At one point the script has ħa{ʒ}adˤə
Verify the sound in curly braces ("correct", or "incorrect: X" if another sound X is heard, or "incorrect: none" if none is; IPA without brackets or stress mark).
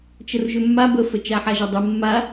correct